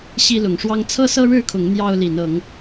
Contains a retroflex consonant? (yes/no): yes